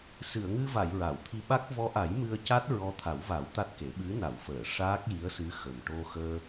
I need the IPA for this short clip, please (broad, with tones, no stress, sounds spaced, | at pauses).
s ɨ˨˩˨ ə̯ ŋ ɨ˧ v a˨˩˨ j ɹ a˨˩˨ w t̪ʰ i˧ ɓ a˦˥ k̚ v ɔ˧˥ ʔ a˨˩˦ j m ɨ˧ ə̯ c a˦˥ t̚ ɹ ɔ˧˥ t̪ʰ a˨˩˦ w v a˨˩˦ w t̪ a˦˥ t̚ k e˨˩˦ ɓ ɨ˧˥ n a˨˩˨ w f əː˨˩˨ ʂ aː˦˥ k̚ j i˧˥ ə̯ s ɨ˧˥ x ə˨˩ m ʈ o˧ x əː˧